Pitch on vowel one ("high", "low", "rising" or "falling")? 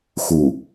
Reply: low